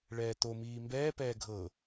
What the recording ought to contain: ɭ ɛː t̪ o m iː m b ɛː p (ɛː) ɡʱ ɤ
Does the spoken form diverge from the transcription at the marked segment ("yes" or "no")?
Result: no